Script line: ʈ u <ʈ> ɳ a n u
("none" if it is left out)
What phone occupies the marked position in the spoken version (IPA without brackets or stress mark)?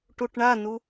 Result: ʈ